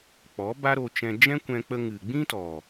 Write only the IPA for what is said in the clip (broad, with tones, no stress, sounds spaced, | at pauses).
k͡p ɔ˨˦ b a˦ ɾ o˧ t͡ʃ ɛ̃˧ d͡ʒ ɛ̃˦ kʷ ɛ̃˧ k͡p ə˧ ŋ ɨ˨ ɡ͡b ĩ˦ t ɔ˨